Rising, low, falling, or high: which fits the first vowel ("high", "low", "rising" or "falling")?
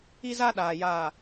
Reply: high